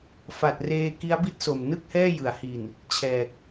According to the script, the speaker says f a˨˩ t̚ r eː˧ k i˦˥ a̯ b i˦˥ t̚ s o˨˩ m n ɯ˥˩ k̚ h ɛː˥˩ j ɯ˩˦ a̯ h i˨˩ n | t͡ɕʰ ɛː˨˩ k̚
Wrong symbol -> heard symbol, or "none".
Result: none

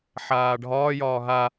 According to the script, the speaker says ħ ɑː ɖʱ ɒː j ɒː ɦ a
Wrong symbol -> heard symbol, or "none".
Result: ɑː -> aː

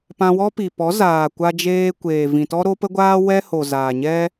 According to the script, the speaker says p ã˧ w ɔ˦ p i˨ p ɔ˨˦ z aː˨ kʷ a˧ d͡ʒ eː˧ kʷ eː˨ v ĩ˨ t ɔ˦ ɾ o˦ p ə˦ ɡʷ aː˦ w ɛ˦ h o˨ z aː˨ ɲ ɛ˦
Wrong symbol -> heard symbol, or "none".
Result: none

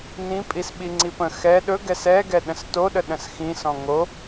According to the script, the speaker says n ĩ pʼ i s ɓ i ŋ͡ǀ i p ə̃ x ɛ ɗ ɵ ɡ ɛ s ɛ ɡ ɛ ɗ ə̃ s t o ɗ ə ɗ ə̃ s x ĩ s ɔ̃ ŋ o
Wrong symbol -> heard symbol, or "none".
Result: none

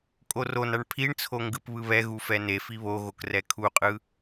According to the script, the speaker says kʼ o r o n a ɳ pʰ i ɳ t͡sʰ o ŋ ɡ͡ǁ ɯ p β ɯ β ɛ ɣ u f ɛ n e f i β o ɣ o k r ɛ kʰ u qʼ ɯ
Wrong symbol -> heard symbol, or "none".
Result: ɡ͡ǁ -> ɡ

